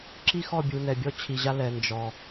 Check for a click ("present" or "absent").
present